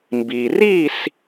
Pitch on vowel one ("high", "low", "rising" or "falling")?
low